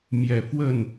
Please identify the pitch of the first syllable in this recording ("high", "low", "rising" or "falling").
low